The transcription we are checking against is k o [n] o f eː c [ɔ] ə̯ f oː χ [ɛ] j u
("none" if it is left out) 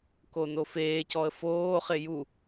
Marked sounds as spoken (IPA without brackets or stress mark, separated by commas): n, ɔ, ɪ